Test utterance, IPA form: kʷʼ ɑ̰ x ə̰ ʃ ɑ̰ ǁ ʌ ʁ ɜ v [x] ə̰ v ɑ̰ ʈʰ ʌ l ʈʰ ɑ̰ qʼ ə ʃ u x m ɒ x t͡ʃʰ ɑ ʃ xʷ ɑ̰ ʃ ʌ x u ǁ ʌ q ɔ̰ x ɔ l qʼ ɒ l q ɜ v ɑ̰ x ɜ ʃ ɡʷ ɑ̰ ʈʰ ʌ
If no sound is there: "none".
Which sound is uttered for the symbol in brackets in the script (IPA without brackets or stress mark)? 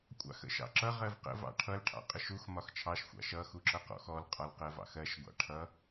q